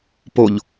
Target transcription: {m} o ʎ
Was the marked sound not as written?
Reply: yes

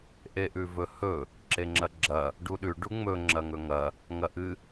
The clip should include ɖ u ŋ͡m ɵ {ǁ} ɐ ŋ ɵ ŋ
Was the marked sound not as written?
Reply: yes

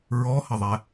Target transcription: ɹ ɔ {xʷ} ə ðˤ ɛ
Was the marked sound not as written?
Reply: yes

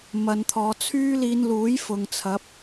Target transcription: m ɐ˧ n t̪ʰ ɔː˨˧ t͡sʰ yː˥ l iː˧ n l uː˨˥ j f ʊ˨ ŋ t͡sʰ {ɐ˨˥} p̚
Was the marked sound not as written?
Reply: no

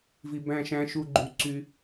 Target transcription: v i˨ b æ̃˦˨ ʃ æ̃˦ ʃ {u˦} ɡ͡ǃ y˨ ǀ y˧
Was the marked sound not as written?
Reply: yes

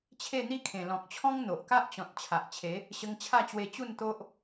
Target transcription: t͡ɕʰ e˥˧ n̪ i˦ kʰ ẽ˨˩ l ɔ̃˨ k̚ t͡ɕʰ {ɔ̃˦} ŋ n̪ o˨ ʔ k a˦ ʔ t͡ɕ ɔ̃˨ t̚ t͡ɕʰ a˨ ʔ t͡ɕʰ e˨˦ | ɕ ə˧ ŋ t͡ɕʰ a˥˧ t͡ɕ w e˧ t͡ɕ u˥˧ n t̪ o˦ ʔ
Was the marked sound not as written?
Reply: no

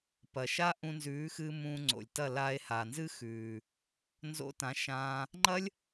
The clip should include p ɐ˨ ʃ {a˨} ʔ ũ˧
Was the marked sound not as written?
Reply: yes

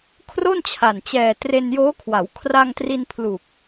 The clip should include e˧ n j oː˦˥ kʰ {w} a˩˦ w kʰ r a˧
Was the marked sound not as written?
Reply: no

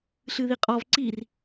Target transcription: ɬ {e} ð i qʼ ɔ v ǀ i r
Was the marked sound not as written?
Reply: yes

